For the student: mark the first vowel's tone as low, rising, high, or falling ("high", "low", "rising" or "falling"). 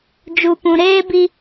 low